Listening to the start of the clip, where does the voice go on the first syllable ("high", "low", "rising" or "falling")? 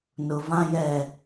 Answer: low